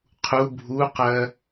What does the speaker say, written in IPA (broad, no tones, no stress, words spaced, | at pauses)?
qʰu bʱuqɜ